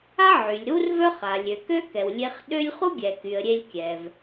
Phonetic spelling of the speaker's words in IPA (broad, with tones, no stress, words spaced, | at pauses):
a˥ʕy˩lʲ ɾu˥rvœ˥χ a˩ lʲø˩kø˥kɛ˩wlʲe˧χ ɗø˥lʲ χu˥ɡʲɛ˩ky˩ə̯ ɾʲe˧lʲkʲɛ˩v